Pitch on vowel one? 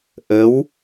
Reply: rising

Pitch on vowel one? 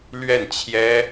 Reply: falling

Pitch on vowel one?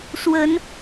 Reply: rising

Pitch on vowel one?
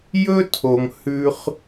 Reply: high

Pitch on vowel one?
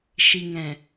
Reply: low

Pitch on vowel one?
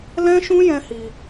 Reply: high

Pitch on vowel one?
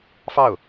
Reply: falling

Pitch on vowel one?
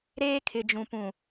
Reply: high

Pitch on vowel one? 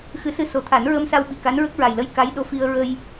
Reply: rising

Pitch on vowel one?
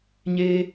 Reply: high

